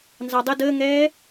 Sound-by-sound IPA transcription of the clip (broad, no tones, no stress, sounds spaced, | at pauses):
n z ɑ dˤ ə d əː ŋ ɛː